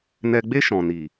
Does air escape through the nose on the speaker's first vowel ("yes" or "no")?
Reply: no